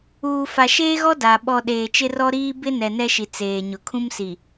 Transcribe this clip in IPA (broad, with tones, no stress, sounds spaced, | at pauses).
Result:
uː˨ f a˨ ʃ eː˦ ɣ ɔ˦ d a˨ ɓ ɔ˨ ɗ eː˨ t͡ʃ ɪ˦ r ɔ˦ ɾ iː˦ b ɪ˦ n ɛ˨ n ɛ˦ ʃ i˨ t͡s eː˨ ɲ ʊ˨ kʰ ũ˦ m s i˨